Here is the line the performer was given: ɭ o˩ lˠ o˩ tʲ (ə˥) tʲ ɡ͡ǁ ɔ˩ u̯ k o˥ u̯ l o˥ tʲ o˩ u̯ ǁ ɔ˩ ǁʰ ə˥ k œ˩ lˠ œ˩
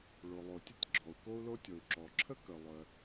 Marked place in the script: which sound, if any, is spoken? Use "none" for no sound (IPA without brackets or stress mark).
ə˥